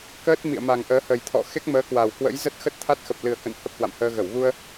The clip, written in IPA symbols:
kəː˦˥t̚mḭ˧˨ə̯ma˨˩ŋʔəː˨˦ hə˨˩jt̪ʰɔ̰˧˨ xe˦˥k̚məː˨˦kwa˨˩w kwə̰˧˥j zə˦˥t̚xə˦˥t̚t̪ʰa˦˥t̚ xə˨˩p̚lɨ˨˩ə̯kə̰˧˨n hə˦˥p̚hwa̰˧˨mhəː˧ɣə˧˩w ɣu˧ə̯

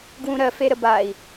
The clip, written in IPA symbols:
ɡwũɾɜfeɾə bai̯

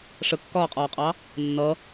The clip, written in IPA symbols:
ʂəkːɒːqʼɒːqʼɑ | nːʌ

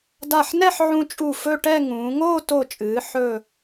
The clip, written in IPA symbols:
da˧˩ħnɛ˥˧ħʕũ˧t͡ʃʼu˧˩ fɵ˥˧ʈɛ˥˧ ŋũː˩˧ŋoː˥˧ to˧˩t͡ʃʼɨː˩˧ ħɵ˥˧

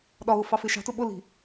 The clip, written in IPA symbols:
ɗɒɣʊ fɑfɪʃɑ̤tʊ ɓʊli̤

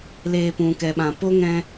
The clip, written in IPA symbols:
leː˧pũ˨kɛ˨ɓã˨ po˦ŋɛ̃˧

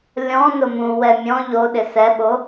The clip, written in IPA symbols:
lʲɔ̃ nʊmũ wɛmʲɔ̃ ʎoɗɪ sɛɓo

